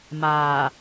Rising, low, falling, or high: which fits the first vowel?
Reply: low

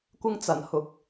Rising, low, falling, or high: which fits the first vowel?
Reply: high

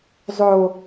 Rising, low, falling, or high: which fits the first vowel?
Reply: low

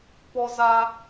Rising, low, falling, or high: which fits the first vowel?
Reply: high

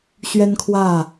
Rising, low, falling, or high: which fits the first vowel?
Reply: high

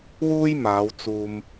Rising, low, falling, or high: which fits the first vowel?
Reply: high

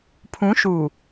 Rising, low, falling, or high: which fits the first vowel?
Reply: rising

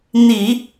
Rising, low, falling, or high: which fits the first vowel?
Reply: low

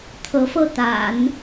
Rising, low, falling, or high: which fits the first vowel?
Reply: rising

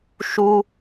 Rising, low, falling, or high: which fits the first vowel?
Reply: high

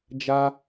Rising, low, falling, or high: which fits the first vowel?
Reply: high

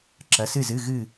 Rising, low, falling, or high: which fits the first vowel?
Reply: rising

